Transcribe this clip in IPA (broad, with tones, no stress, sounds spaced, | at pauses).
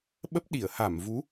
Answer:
ɓ ə˦˥ p̚ ɗ i˧˩ ə̯ h a˧˩ m v u˨˦